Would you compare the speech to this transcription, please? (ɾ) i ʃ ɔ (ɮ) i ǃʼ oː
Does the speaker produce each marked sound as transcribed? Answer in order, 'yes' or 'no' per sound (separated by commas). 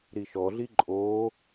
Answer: yes, yes